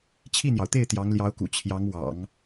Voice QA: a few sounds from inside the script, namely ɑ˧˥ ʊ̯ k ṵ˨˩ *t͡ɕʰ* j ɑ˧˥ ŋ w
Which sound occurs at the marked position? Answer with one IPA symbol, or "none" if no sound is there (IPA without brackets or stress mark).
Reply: t͡ɕʰ